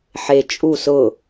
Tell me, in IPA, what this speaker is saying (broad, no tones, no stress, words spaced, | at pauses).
ħe t͡ʃʼu sʊ